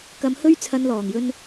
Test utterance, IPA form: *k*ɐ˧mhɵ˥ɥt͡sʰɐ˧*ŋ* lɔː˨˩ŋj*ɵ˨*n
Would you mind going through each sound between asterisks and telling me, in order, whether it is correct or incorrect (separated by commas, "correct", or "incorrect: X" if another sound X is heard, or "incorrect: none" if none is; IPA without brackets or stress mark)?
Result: correct, incorrect: n, incorrect: ɵ˧